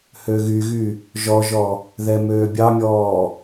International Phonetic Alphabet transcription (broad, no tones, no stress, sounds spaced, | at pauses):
h ø ɣ y ɣ y | ʒ ɔ ʒ ɔ | ð ɛ m øː bʲ ɑ mʲ ɔː